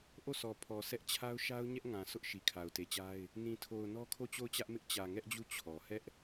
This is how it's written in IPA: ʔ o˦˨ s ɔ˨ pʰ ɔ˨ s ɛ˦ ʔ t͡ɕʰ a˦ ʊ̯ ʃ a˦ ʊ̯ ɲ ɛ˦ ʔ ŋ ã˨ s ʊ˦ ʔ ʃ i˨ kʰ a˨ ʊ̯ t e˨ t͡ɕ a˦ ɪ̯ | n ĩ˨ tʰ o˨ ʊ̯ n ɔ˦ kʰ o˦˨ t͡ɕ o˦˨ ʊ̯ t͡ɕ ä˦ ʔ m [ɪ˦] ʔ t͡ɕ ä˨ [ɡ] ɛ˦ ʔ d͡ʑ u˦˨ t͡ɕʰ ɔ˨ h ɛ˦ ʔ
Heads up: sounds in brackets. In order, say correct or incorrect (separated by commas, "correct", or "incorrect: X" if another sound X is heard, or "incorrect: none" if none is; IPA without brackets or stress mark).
correct, incorrect: ŋ